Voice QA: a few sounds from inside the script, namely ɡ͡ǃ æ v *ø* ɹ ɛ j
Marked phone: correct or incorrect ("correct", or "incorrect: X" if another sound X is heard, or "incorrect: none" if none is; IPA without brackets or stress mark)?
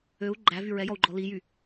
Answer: incorrect: y